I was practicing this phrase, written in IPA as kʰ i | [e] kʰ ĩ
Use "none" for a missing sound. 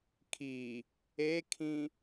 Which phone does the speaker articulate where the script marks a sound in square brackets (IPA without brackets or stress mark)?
e